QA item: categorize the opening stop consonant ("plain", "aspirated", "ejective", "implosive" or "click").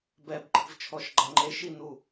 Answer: plain